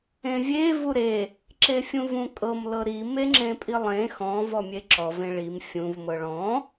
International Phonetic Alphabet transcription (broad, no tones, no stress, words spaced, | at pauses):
ẽvʲe vuɾe | ǁefʲũvũkʼɤm lɤɾi meŋ͡ǁẽpʼilˠẽ xɔ̃ vɔmʲeǁɔ vẽɭim fʲũv mɤɭɔ̃